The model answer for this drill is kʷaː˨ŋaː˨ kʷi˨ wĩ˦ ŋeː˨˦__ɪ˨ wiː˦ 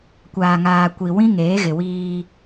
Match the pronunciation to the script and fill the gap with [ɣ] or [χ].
ɣ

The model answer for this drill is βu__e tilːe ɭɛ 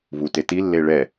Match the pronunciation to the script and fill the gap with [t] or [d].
t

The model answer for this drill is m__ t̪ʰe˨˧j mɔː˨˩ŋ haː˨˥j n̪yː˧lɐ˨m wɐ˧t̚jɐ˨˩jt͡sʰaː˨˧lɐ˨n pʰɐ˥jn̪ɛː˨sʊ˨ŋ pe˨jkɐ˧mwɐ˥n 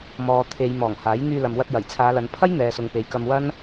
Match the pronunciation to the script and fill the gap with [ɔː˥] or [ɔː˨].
ɔː˨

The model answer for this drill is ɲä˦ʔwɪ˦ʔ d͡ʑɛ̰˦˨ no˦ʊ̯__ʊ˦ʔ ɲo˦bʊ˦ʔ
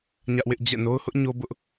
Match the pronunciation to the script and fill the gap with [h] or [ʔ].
h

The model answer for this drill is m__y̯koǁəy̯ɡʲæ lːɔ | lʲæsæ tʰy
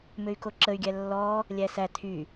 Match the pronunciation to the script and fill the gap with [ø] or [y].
ø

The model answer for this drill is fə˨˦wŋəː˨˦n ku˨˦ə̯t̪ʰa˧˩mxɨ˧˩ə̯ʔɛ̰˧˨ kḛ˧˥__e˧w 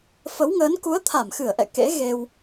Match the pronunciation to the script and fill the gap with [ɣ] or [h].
ɣ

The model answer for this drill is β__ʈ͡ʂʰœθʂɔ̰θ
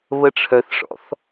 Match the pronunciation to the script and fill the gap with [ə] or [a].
ə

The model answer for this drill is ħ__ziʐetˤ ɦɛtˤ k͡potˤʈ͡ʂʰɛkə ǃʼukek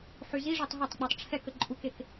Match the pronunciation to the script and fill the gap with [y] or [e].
y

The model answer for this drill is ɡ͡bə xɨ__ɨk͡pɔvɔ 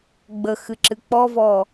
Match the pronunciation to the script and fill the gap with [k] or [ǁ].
ǁ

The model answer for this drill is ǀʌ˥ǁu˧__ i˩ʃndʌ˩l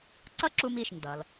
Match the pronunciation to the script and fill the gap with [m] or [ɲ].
m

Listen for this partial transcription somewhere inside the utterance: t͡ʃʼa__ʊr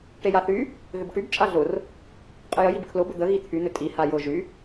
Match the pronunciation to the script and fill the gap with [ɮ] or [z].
ɮ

